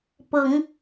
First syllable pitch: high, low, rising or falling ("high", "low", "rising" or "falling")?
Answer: rising